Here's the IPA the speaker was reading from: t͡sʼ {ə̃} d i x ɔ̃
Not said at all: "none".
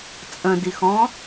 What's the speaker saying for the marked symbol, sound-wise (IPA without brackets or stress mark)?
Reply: ə̃